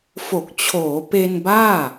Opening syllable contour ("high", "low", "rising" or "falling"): low